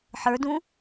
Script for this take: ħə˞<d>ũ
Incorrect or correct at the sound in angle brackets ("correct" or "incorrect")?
correct